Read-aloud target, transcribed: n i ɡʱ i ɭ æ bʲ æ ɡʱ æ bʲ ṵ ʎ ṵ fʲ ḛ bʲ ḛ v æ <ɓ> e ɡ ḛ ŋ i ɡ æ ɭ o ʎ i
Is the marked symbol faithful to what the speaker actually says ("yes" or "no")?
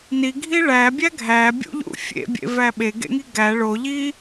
yes